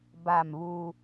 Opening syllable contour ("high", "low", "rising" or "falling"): falling